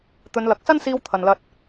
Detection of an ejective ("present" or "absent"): absent